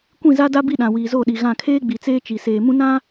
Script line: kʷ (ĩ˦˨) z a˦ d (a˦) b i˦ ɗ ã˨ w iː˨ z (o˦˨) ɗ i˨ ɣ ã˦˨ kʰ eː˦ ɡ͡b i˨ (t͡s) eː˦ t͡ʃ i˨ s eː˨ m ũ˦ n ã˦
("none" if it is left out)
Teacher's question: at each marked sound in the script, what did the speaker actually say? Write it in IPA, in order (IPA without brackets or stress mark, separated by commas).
ĩ˦˨, a˦, o˦˨, t͡s